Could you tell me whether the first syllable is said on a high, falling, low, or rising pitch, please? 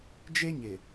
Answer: high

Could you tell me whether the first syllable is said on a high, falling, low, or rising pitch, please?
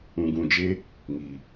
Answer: low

